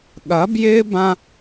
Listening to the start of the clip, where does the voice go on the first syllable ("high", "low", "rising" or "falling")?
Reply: rising